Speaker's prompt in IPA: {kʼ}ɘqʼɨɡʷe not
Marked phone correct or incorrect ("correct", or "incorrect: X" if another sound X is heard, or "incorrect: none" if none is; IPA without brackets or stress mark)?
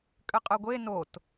correct